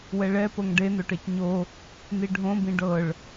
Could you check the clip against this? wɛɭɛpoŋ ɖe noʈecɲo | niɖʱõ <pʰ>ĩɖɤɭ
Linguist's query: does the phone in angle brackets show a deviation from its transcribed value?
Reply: yes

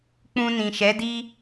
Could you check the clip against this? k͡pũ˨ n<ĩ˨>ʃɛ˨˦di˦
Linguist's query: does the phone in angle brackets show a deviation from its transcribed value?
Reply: no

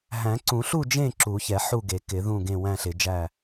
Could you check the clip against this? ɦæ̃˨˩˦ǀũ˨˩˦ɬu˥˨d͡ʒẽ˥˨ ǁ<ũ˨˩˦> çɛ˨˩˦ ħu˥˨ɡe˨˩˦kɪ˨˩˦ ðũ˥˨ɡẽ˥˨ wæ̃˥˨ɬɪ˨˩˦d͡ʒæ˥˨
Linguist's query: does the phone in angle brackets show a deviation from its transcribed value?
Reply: yes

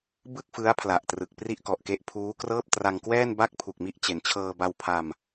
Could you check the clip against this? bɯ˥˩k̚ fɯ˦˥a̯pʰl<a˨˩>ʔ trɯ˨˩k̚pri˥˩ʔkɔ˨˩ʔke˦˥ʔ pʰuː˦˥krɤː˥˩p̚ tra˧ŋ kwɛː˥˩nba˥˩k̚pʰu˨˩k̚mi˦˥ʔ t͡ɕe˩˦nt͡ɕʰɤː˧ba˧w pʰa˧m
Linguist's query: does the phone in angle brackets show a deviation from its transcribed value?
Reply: no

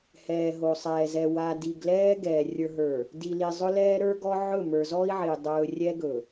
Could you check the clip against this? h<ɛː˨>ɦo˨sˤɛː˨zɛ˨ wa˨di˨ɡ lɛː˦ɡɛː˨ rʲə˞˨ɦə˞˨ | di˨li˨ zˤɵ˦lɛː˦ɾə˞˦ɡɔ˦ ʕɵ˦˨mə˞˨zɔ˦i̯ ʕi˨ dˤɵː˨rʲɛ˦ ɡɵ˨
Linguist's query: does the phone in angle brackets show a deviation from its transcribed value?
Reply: no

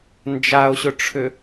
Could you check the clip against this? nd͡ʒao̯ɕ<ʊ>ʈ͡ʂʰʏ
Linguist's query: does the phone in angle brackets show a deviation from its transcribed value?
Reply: no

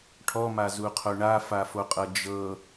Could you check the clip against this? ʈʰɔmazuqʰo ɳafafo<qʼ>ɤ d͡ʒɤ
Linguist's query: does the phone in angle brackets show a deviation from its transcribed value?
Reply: no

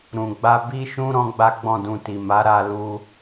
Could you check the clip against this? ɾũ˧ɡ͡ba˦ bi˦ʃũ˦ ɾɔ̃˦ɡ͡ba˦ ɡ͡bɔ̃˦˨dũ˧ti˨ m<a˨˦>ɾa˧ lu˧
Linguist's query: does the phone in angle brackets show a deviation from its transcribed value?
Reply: no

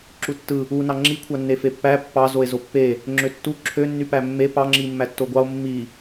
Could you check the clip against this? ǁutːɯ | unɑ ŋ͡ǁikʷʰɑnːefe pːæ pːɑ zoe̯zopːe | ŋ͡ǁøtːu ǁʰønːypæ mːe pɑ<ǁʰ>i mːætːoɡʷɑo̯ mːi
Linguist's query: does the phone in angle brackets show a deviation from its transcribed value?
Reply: yes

